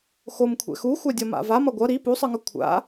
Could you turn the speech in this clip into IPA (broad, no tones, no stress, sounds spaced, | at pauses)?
x o m kʷʰ ɛ̰ x u xʷ a dʲ ʌ m a̰ v a m ʌ ɡʷ ʌ ɾ i p u sˤ ɯ ŋ ʌ kʷʰ a̰